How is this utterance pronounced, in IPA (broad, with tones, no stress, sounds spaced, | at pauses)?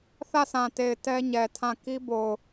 θ ä˦˨ s ã˨ t e˨ ɪ̯ t ɛ˦ ɲ ɛ˨ tʰ ã˦˨ k i˦ b o˨ ʊ̯